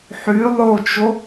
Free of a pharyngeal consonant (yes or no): no